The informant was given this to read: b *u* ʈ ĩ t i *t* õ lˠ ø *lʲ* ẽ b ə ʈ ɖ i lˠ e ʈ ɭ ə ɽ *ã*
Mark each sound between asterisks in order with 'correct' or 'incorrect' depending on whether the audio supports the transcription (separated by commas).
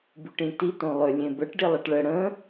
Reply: incorrect, correct, correct, incorrect